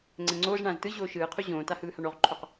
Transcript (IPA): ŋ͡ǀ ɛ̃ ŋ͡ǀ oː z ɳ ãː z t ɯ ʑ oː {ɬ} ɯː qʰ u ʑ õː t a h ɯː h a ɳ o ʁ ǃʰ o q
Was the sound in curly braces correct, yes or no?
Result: no